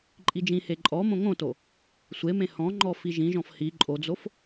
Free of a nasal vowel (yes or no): no